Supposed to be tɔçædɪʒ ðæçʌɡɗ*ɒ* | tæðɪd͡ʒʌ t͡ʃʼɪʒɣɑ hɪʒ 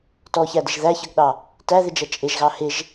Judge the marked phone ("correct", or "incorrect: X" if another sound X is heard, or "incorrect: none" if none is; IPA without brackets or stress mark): incorrect: ɑ